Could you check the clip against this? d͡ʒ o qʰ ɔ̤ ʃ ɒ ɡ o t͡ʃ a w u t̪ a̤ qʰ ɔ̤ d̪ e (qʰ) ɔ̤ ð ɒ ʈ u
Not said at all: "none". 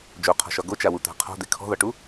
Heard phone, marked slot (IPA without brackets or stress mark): kʰ